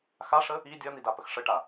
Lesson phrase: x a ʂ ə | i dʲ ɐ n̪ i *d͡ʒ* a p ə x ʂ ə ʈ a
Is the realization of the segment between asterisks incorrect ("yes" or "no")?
yes